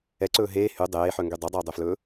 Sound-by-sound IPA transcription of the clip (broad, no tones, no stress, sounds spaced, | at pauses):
ɛ ǀ ɵː ɦ eː h y dˤ eː ħ œ ŋ ɡ y dˤ œ dˤ ɵː dˤ ø f l ɵː